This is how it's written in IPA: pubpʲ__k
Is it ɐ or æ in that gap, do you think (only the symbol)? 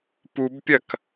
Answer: ɐ